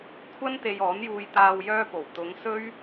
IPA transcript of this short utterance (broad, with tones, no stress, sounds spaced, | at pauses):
kʷʰ ɐ˥ n t̪ e˧ j ɔː˨˥ n j uː˧ j t̪ aː˧ w j œː˧ p o˨˩ w t̪ ʊ˨˧ ŋ s ɵ˥ ɥ